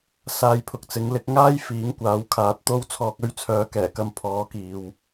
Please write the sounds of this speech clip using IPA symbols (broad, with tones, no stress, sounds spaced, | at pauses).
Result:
s aː˧ j pʰ ʊ˨ k̚ t͡s ɪ˨˥ ŋ l ɪ˨˥ k̚ ŋ aː˥ j f iː˨˥ ŋ kʷ aː˨˧ w kʰ aː˨˥ t̚ t̪ o˥ w t͡sʰ ɔː˧ k̚ ɵ˥ ɥ t͡sʰ œː˨˥ k ɛː˨˩ k ɐ˧ m pʰ ɔː˨˥ k iː˨ w